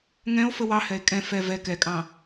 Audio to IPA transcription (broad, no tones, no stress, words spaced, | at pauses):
ŋɛ̃o̯ fəwɑhɛe̯ kʼɛ̃ fɛ vɛ kɛkʼɑ̃